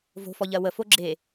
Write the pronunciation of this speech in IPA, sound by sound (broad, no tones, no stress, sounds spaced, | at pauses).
v o̤ f ɔ ʎ ɜ w ə f o ɡ͡ǁ e